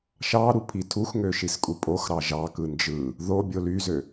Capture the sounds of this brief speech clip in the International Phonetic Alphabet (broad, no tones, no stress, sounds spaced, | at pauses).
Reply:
ʃ ɑ ɾ u pʰ i tʰ u x ŋ ø ʃ i s kʼ u pʼ o x ɾ ɑ ʒ ɑ k ɯ n d͡ʒ ɯ | ð o bʲ o l y z ø